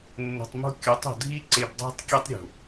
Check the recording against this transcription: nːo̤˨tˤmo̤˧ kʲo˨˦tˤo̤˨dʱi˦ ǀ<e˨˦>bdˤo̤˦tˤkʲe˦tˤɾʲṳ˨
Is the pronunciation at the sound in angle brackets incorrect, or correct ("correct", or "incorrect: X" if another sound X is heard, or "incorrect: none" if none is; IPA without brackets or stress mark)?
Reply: incorrect: e˧